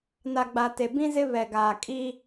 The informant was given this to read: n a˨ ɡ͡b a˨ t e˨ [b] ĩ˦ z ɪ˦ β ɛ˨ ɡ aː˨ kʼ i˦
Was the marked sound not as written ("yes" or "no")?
no